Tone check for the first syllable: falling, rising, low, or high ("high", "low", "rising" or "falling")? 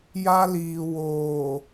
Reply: high